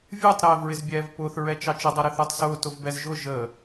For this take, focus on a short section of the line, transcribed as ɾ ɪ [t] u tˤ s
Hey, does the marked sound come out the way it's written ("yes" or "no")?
no